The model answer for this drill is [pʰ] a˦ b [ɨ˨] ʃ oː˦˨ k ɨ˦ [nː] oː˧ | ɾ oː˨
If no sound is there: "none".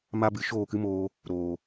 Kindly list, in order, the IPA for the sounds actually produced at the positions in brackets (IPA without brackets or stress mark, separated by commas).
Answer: m, ɨ˨˦, m